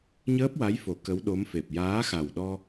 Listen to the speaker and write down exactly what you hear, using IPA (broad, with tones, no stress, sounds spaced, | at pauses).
ɲ əː˦˥ p̚ w a˧˥ j f o˨˩˦ k ə˧˥ w ɗ o˧˥ m f e˨˩ p̚ j aː˧˥ x a˨˩ w ɗ ɔ˧